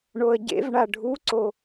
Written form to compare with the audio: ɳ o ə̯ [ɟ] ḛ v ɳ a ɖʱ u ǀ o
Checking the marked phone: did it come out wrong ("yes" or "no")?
no